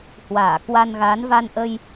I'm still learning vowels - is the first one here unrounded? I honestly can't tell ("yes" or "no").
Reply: yes